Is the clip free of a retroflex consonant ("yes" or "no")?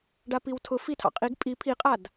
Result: no